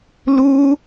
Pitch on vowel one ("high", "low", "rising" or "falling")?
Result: high